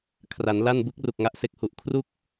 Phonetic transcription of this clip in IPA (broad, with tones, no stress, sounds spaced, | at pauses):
kʰ r a˩˦ n l a˥˩ n b ɯ˦˥ k̚ r u˨˩ k̚ ŋ a˦˥ ʔ s e˨˩ k̚ h u˨˩ ʔ kʰ r u˥˩ k̚